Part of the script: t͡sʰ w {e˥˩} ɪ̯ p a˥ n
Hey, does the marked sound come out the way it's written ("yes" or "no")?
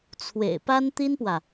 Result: no